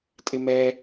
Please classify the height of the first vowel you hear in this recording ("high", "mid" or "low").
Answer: high